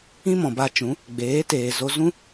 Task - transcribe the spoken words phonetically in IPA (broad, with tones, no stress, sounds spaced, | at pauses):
ĩ˦ m ɔ̃˨ b a˧ t͡ʃ ũ˨˦ | ɡ͡b eː˨˦ t eː˨ z o˧ z ũ˦